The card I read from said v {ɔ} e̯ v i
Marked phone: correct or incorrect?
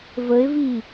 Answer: incorrect